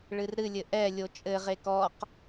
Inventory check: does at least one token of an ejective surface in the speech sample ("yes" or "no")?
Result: yes